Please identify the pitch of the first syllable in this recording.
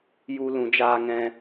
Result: high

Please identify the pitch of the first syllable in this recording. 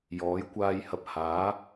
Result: rising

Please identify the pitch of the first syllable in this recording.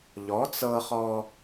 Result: rising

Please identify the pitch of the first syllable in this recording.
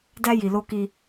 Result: high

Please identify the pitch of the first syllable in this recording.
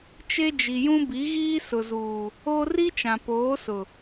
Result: high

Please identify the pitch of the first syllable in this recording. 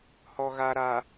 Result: low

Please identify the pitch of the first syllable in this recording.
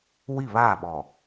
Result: falling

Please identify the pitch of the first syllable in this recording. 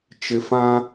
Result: low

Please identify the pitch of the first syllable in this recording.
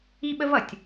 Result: high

